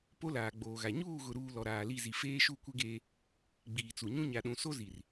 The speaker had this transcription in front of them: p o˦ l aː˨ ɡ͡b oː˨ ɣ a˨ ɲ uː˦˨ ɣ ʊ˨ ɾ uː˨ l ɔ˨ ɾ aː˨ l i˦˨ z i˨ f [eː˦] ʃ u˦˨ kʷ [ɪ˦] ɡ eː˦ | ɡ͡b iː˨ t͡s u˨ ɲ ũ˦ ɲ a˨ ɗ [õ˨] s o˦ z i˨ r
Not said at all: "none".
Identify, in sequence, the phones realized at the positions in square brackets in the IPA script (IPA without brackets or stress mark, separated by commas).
eː˦, ɪ˦, ũ˨